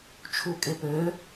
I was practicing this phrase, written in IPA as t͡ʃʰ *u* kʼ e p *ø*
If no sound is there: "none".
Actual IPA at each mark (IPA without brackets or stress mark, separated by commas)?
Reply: u, ø